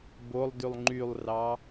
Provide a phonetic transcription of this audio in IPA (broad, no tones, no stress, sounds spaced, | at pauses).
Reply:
b o lˠ d y lˠ ŋ͡ǃ y lˠ r ɑ